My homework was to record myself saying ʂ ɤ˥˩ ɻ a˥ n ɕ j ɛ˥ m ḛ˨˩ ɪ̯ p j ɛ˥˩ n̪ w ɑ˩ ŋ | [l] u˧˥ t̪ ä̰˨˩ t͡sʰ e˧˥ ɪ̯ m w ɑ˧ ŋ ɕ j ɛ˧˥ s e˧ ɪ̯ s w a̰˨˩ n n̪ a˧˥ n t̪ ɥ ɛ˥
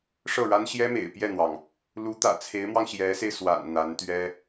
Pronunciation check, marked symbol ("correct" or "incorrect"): correct